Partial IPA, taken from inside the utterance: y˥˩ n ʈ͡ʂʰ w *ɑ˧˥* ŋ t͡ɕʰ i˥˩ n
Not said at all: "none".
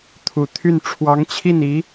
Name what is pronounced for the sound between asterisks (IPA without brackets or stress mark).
ɑ˧˥